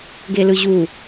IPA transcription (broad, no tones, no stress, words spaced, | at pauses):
ɡelɯʑu